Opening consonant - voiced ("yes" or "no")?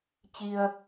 no